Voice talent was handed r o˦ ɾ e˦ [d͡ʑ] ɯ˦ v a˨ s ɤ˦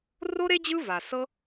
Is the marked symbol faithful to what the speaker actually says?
yes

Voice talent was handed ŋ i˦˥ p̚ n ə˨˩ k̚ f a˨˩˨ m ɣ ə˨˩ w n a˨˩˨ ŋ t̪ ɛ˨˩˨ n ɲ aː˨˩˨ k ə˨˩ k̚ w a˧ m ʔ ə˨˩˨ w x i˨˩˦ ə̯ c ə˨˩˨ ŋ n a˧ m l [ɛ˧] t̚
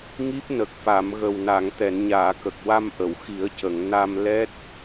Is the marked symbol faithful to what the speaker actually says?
no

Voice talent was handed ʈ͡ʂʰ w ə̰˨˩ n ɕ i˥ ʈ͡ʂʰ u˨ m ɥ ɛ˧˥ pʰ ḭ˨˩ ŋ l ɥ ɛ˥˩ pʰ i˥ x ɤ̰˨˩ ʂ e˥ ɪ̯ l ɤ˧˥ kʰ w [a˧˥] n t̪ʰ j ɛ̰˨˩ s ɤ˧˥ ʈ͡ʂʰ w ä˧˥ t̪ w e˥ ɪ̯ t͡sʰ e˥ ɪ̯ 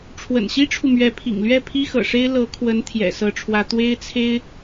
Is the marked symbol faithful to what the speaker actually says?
no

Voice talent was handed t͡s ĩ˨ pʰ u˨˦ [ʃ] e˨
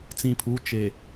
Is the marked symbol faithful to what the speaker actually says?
no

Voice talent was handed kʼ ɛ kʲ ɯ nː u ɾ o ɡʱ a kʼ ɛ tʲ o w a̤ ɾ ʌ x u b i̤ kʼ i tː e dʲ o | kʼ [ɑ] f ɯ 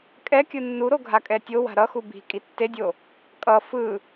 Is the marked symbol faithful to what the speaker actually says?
no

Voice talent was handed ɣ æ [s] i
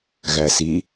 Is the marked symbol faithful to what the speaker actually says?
yes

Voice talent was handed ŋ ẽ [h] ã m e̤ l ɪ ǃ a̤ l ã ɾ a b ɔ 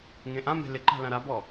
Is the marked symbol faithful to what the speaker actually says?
no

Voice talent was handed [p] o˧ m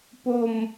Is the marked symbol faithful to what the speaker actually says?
yes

